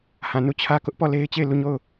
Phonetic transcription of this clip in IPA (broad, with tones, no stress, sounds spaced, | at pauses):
h ã˨ n u˦˨ t͡ɕʰ ä˦ k ʊ˦ ʔ p ɔ˦˨ l e˦ ɪ̯ t͡ɕ e˦˨ ɪ̯ l u˦˨ ɲ o˦˨ ʊ̯